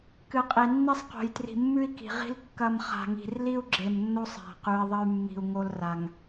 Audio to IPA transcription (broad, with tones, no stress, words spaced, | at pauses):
kɨ˨qʼi˨ nːi˦sˤqo̤˨j tri̤˨mːʉ˦i̯ki̤˨ʁi̤˦l kːɐ˦m χa̤˨ŋi̤˨r li˦u̯ɡ͡ǁe˨m nːo˦sˤa̤˨ qʉ˨i̯ðˤɐ˦y̯mːi̤˨u̯ ŋo˦lra˨ŋ